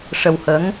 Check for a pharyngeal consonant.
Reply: absent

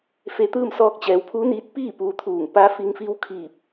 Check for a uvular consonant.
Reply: absent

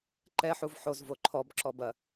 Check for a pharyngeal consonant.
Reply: present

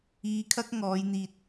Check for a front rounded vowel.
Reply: absent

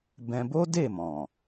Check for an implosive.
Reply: absent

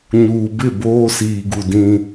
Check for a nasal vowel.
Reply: present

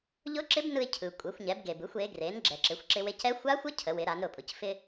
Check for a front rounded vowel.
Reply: absent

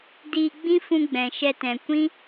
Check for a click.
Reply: absent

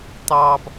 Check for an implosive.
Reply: absent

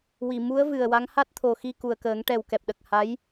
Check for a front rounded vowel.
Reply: absent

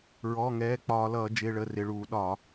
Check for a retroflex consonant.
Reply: present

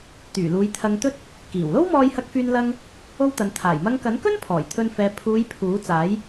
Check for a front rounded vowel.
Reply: present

